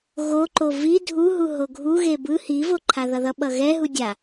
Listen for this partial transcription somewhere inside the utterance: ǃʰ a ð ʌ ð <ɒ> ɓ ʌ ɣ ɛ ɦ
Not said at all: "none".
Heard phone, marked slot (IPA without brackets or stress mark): ʌ